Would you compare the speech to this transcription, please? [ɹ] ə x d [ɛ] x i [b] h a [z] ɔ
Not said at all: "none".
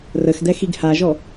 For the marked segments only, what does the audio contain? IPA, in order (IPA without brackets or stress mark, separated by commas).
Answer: r, ɛ, ɡ, ʒ